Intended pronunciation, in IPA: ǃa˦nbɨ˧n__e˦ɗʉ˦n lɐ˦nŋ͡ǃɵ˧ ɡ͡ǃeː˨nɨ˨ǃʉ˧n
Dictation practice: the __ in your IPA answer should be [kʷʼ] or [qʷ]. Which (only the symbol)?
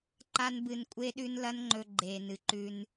kʷʼ